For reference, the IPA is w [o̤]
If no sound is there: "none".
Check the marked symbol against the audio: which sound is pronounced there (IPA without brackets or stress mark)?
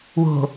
o̤